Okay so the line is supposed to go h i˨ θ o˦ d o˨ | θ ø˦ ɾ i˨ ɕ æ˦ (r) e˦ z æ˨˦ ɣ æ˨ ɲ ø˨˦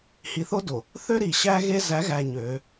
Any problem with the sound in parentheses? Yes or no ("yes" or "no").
yes